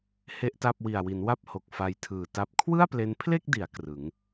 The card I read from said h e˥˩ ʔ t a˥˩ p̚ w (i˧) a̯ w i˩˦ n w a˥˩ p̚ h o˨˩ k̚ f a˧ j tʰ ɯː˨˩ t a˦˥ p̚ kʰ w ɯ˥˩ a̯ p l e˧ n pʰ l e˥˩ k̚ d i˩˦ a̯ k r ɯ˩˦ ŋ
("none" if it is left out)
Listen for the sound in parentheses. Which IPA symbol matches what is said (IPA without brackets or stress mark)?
i˨˩